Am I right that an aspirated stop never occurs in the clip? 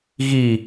yes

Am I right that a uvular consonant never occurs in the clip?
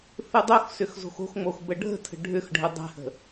yes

